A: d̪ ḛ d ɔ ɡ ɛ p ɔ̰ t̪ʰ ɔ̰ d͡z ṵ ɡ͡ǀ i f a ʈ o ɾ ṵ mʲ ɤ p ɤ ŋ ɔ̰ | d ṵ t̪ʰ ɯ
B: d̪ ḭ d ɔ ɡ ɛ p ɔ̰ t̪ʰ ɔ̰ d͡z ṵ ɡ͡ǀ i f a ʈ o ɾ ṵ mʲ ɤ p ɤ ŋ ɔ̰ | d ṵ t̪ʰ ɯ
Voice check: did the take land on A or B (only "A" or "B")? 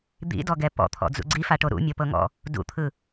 B